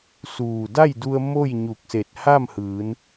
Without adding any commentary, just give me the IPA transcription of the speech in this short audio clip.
s uː˧˩ d a˥˨ j d u˧ ə̯ m o˥˨ j ɲ u˧˩ k̚ s e˧˩ t̚ h a˥˨ m h ɯː˩˧ n

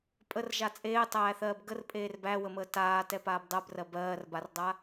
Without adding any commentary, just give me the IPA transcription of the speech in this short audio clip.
pʼ ə r ʒ a t͡sʼ eː tˤ æː θ ɜː b ɡ ə r pʼ eː r b æ w ə m əː t aː t ɛ p aː b dˤ ɜ b r ɜ b ɜː r b a r dˤ a

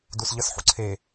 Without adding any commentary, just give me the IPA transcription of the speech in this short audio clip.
d u s ʎ ə s ħ ṵ ǀʰ e

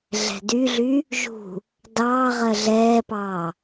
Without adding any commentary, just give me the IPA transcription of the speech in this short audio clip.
ɮ ɛ̤ d y ɮ y | ʒ ṳ | d ɑː ʁ ɜ ɮ ɛː p ɑː

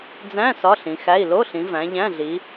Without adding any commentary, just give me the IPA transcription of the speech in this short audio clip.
d͡z æ̃˧˥˧ s ɒ˧˥˧ ɬ ĩ˨˦ x æ˧˥˧ i̯ l o˧˥˧ ɬ ĩ˨˦ v æ̃˨˦ ʎ æ̃˧˥˧ ɮ i˨˦

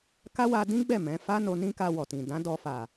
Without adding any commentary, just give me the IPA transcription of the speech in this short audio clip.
k a˦ w a˧ d ĩ˦ ɡ͡b ɛ˦˨ m ɛ̃˨˦ f a˦ n o˧ n ĩ˦ k a˧ w ɔ˨ t ĩ˨ d ã˨˦ d ɔ˧ f a˨

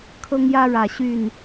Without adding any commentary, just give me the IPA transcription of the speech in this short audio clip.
kʰ ɤ˦ ŋ j ä˦ ɻ ä˨˩ ɕ y˥˨ n

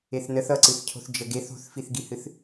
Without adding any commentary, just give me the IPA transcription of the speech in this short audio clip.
e θ n ə θ ʌ ǀ ɨ θ cʰ o̤ θ d͡ʒ ə ɡ e θ o̤ θ f i θ ɡ i h ɨ θ

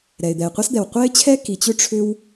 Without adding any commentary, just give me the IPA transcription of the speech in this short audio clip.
ɾ ɛ˩ ɪ̯ d̪ ɛ˩ ɪ̯ qʷ a˥ s d̪ ɛ˩ w qʷ ɛ˥ ɪ̯ t͡ɕʰ ɛ˥ k i˩ t͡ɕ ʏ˥ ʈ͡ʂʰ ʏ˥ w

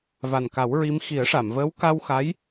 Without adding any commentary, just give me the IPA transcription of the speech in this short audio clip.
v a˨˩ n k a˨˩˦ w ɹ i˧˥ m x i˨˩˦ ə̯ ʂ a˨˩˨ m v əː˧˥ w k a˧ w x a˧˥ j

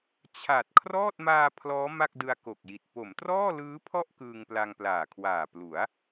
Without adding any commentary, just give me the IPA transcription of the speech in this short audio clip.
t͡ɕʰ a˨˩ t̚ kʰ r ɔː˥˩ t̚ m aː˧ pʰ l ɔː˦˥ m a˥˩ k̚ d ɯ˧ a̯ k o˨˩ k̚ j i˨˩ t̚ p o˩˦ m t r ɔː˥˩ l ɯː˦˥ pʰ ɔ˥˩ ʔ k ɯː˧ ŋ p l a˧ ŋ p l aː˨˩ kʰ w aː˨˩ p l u˩˦ a̯

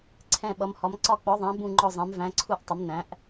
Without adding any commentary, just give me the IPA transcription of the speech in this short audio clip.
ǀʰ ɛ̃˧˩ ɓ ʌ˩˧ m h ɒ˩˧ m ǀ ɒ˧˩ k͡p ɔ˩˧ ðˤ æ̃˩˧ b ũ˧˩ ŋ͡ǃ ɔ˧˩ zˤ ɛ̃˩˧ m v æ̃˩˧ ǀʰ u˧˩ ʔ tˤ ʊ˩˧ m n æ̃˩˧ ʔ

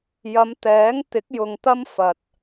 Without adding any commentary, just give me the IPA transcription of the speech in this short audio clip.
j ɐ˨˧ m t̪ ɛː˨˥ ŋ t̪ ɪ˨˥ k̚ j ʊ˨ ŋ t̪ ɐ˥ m f ɐ˨ t̚

